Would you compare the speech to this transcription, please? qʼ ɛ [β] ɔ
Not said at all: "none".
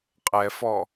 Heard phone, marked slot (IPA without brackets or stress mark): f